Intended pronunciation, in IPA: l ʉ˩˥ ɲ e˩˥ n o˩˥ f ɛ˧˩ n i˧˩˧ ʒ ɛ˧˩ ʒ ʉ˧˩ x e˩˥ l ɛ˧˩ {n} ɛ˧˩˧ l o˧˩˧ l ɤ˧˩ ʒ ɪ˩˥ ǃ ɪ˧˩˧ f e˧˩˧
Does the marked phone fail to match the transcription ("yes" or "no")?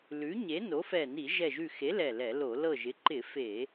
yes